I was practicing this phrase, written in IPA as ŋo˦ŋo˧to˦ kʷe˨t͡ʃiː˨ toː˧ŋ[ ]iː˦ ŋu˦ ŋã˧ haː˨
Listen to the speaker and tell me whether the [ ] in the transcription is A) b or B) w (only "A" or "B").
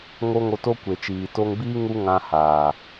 A